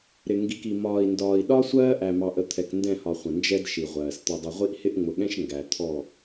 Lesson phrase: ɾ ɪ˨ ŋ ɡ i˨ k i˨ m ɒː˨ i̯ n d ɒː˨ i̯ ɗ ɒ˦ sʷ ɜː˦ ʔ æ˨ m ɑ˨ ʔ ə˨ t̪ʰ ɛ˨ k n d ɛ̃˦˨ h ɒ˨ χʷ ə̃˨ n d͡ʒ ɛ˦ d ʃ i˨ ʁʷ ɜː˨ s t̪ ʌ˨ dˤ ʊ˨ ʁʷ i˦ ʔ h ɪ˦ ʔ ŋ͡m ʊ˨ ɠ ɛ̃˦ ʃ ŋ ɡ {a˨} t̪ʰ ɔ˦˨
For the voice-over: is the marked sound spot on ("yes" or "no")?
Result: no